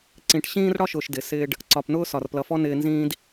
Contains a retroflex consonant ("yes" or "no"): yes